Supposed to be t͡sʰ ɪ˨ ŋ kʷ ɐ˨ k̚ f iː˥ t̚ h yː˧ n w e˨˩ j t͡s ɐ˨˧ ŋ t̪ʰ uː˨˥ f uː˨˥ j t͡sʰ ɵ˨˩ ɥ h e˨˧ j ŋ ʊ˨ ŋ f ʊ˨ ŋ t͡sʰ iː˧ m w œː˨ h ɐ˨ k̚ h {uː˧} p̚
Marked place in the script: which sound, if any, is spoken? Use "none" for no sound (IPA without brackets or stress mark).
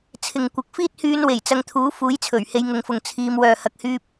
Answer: yː˧